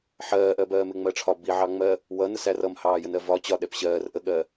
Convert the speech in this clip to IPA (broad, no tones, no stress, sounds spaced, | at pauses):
ħ ɜː ʔ ɜ b ɜː m ɪ ŋ͡m ɜ ʈ͡ʂʰ ɒ b i ʕ ɑ ŋ͡m ɜ | w ʌ n ə s æ r ʌ m h ɑː j ə n ɜ v ɒ t͡ɕ ɒ ɗ ɛ p ɕ ɜː r ʔ ə ɠ ɜː